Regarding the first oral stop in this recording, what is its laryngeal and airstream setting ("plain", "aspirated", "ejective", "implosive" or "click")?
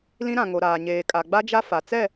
ejective